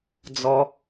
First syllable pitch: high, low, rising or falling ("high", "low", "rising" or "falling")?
low